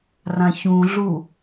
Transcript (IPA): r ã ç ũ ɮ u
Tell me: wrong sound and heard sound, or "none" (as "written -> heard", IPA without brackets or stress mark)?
none